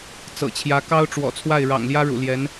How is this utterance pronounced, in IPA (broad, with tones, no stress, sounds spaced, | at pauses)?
t͡s ɤ̰˨˩ t͡ɕʰ j ä˧˥ k ɑ˥ ʊ̯ ʈ͡ʂ w ɔ̰˨˩ t͡sʰ w a˥˩ ɪ̯ ɻ ɑ̰˨˩ ŋ l j ä˥ ɻ ṵ˨˩ l j ɛ˧˥ n